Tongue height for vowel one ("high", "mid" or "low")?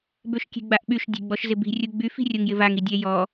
mid